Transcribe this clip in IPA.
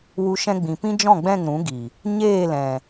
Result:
w u˧ ʃ ɛ̃˧ ɡ͡b ĩ˨ p ĩ˦ d͡ʒ ɔ̃˦˨ ɡ͡b ɛ̃˦˨ ŋ ɾ ũ˨˦ ɡ i˨ | ɲ eː˦˨ l ɛ̃˨

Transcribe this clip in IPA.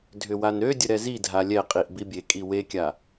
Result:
dʱ ʏ w a n ɾ ø dʲ ə ɾ ɛ z i dʱ a lʲ ɛ qʼ i ʔ b i bʲ e kʼ i w e kʲ a

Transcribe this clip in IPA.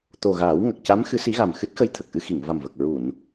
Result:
t̪ o˨˩ ɣ aː˨˩˦ w ŋ ə˨˩ k̚ c a˧˥ m x ɨ˧˥ s i˧˥ ɣ a˨˩ m x ɨ˦˥ t̚ x ə˧˥ j t̪ʰ ə˨˩ k̚ ʔ ɨ˧ x i˨˩˨ ŋ v a˨˩ m v ə˨˩ k̚ ɹ u˨˩˨ n

